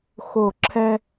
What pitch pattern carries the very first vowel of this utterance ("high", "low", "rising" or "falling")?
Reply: falling